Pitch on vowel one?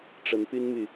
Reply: rising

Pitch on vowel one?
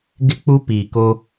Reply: high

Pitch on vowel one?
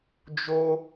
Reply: high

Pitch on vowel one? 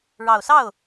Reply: low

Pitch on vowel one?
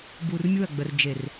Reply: low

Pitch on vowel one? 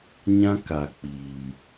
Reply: high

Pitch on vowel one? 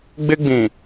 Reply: high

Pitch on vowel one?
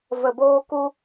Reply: low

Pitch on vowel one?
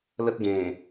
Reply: high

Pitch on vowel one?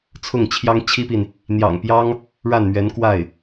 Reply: falling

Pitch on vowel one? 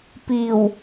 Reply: low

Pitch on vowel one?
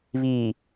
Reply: low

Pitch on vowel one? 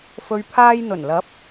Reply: low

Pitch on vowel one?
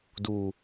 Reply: low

